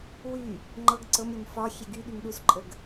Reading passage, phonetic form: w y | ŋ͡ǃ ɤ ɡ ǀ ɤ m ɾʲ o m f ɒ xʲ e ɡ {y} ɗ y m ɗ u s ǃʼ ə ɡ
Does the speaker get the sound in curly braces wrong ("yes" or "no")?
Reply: no